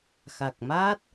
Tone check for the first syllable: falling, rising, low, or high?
low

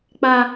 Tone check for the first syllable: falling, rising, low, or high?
high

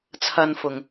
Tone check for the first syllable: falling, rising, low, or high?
low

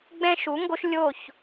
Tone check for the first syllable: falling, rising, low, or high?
high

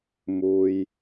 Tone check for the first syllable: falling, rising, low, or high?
low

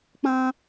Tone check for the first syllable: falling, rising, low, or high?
high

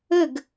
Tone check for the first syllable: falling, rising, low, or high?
falling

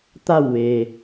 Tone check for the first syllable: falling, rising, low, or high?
falling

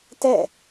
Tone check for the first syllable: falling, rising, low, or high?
falling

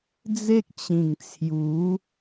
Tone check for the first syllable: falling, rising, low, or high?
high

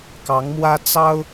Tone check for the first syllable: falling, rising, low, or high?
rising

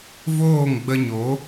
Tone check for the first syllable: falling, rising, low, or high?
falling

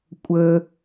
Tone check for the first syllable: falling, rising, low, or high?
high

